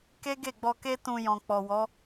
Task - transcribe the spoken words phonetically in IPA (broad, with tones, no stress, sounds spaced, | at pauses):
k e˦ ɡ e˦˨ ɡ͡b ɔ˧ k e˦ t ũ˧ j ɔ̃˨ k͡p ɔ˨ w ɔ˨˦